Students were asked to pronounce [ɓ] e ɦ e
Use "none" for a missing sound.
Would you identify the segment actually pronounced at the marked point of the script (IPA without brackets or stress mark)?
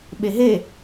ɓ